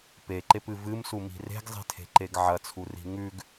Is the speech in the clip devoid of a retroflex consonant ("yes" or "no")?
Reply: yes